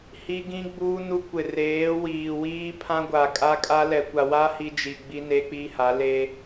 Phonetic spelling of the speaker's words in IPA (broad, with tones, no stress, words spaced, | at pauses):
hi˦ɡĩ˦ɡ͡buː˦nu˦ kʷɪ˨reː˨˦wiː˨wiː˦ pʰã˦ɡʷa˨kʼa˦kʼa˦ lɛ˨kʷa˨ wa˦ hi˦d͡ʒi˨ ɡ͡bi˦ne˦k͡pi˦ha˨˦ le˦